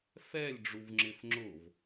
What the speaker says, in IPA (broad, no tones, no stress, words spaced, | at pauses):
fɛlʲ ɖ͡ʐuvŋ͡ǁɪfŋ͡ǁʊv